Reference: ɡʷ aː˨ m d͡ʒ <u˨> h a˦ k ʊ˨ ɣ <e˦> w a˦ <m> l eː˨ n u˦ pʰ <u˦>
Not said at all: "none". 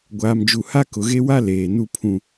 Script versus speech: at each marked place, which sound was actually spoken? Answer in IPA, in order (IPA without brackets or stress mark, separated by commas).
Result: u˨, e˦, none, ũ˦